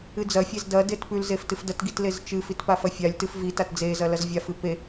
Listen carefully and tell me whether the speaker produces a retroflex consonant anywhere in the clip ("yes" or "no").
no